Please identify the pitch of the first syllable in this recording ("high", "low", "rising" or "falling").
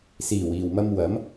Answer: low